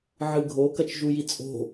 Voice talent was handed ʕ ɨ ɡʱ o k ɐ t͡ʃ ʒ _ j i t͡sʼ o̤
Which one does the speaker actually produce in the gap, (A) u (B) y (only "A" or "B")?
A